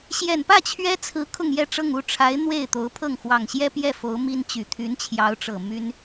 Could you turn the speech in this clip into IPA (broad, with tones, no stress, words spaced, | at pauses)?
ɕjɛ˨˩npä˥˩ t͡ɕʰɥɛ˥t͡sʰɹ̩˧˥ kʰʊ˥˧ŋjɛ˥˧ʈ͡ʂɤ˥˧ŋ u˥˩ʈ͡ʂʰa˧˥ɪ̯ n̪we˥˩ɪ̯ t̪o˧˥ʊ̯pʰɤ˥˩ŋ xwɑ˨˩ŋɕjɛ˥pjɛ˥˩ fo˧˥ʊ̯mi˥nt͡ɕy˨˩ t̪ʰy˧˥nt͡ɕʰjɑ˧˥ʊ̯ʈ͡ʂɤ˨˩ my˥n